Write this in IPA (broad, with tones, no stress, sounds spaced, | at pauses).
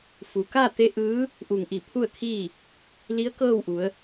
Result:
f u˩ k a˥˨ t̪ e˧˥ ʔ ɯː˧˥ | ʔ u˧˩ ŋ ʔ i˧˩ pʰ u˥˨ ə̯ kʰ iː˥˨ | l i˧˥ ə̯ k ɤː˥˨ w ʔ u˩˧ ə̯